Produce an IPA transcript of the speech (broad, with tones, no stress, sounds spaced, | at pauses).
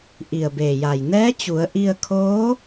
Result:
ʔ i˧˩ ə̯ b eː˧˩ j a˧˩ j n ɛː˧˥ t͡ɕ u˩˧ ə̯ ʔ i˧ ə̯ kʰ oː˧˥